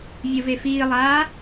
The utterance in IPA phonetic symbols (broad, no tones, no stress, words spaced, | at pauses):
vʲəvefiːlˠaː